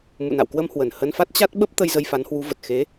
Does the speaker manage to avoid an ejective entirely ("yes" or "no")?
yes